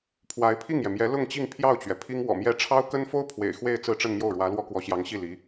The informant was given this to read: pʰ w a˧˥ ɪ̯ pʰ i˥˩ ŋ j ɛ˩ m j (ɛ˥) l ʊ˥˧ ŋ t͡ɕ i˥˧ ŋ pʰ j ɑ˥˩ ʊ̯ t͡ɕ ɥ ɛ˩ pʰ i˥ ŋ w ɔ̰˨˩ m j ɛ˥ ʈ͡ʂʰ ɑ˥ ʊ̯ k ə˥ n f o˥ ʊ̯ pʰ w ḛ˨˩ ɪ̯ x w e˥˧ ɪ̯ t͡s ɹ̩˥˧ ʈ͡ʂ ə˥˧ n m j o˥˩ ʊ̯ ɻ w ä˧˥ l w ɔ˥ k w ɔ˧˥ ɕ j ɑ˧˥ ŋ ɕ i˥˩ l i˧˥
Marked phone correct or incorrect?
incorrect